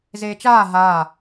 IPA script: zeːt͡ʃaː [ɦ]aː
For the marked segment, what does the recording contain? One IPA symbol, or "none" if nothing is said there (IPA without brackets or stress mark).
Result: ɦ